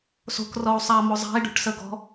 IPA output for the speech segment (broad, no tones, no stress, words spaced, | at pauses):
so̤k rɔu̯sˤamo zˤa̤i̯ɖo̤ʈsə ɡɔ̤